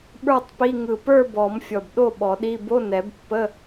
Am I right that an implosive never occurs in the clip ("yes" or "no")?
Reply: no